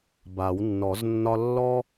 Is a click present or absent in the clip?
absent